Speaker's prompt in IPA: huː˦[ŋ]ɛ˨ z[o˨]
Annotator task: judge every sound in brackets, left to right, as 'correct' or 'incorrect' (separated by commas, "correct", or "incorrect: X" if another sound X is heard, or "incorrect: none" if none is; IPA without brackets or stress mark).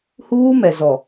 incorrect: m, incorrect: ɔ˨